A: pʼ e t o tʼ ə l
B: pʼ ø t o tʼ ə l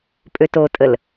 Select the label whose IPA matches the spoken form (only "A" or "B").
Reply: B